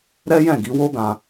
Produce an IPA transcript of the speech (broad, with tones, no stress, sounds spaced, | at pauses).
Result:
ɾ ɛ˦ j ɛ̃˦˨ ɡ i˨˦ w o˦ ɡ ã˧